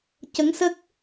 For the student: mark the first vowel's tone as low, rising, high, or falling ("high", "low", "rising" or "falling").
rising